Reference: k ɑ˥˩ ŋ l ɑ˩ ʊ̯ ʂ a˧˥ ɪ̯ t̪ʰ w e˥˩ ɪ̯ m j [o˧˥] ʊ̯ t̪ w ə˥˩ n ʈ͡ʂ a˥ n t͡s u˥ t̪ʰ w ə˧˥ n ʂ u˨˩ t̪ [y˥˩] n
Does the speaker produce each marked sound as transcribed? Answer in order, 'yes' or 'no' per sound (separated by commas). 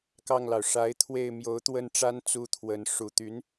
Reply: yes, no